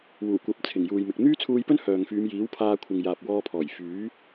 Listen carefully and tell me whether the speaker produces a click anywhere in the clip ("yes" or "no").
no